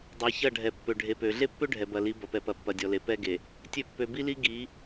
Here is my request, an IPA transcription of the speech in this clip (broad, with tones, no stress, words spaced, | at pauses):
dˤɛ˨çɐ˦˨ ɖʱɛ˨pːø˨ɖʱe˨pø˨ ɮe˦pːø˦ ɖʱɛ˨bɐ˨li˨˦ bɐ˨pɛ˨pɐ˨ pːɐ˨dʲɔ˨le˨ pɛ˦ɡe˨ | tʲø˦˨ pːø˨bi˦li˦ ɡi˨˦